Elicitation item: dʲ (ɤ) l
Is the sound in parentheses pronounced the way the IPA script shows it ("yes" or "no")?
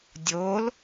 no